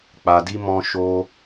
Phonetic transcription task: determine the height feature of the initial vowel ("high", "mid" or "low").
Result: low